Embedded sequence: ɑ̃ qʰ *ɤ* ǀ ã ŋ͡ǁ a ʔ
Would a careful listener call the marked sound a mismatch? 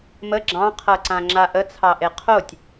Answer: no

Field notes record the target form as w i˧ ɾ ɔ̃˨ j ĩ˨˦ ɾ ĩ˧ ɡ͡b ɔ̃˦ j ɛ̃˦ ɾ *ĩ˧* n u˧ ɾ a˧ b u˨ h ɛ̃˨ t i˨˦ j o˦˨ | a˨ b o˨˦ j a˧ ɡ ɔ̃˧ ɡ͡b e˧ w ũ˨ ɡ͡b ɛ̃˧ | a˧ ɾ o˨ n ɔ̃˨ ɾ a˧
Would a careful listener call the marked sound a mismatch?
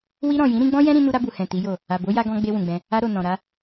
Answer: no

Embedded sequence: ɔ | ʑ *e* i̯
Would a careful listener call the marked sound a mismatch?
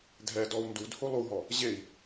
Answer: no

